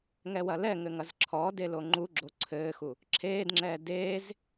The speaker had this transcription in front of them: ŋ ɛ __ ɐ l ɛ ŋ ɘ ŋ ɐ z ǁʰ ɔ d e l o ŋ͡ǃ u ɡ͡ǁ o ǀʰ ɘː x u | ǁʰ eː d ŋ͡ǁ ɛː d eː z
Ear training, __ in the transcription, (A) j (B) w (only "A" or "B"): B